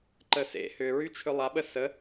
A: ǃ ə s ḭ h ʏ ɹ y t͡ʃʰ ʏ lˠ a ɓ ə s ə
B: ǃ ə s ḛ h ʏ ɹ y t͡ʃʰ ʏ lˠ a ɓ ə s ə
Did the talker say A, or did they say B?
B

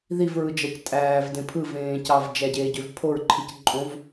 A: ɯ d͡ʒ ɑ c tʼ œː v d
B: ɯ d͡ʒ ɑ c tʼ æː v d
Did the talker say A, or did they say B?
B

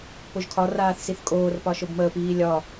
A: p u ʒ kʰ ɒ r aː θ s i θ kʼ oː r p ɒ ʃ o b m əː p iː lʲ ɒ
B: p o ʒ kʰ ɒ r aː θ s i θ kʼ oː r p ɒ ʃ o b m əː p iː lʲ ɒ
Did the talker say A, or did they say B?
B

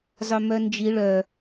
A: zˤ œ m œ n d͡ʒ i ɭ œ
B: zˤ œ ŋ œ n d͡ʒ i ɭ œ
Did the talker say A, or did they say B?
A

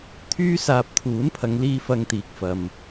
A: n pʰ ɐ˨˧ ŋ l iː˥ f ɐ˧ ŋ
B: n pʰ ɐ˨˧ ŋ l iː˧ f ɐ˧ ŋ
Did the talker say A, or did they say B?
B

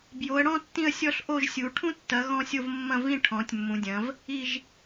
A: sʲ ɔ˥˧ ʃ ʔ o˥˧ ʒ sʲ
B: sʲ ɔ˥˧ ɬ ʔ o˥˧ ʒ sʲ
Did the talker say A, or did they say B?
B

